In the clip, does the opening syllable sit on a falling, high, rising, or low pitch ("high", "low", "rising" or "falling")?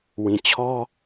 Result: low